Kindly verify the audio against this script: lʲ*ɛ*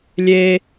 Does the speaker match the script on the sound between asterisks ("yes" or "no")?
no